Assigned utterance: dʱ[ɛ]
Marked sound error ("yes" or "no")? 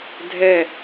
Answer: no